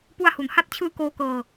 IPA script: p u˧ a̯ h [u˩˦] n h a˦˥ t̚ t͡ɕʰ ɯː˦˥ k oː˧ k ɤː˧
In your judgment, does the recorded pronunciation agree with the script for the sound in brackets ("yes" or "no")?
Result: yes